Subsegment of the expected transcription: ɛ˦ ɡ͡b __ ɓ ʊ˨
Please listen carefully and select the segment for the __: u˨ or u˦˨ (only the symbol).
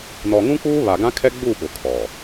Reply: u˦˨